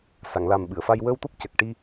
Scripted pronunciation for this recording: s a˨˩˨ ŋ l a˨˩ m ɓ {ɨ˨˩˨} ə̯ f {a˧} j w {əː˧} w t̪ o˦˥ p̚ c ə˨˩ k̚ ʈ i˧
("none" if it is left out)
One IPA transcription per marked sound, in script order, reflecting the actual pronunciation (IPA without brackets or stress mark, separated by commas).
ɨ˨˩˨, a˧, əː˧